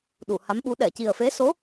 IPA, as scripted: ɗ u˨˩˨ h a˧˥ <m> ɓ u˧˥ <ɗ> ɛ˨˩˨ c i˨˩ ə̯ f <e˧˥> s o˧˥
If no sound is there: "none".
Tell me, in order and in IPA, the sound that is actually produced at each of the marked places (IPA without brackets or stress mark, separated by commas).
m, ɗ, e˧˥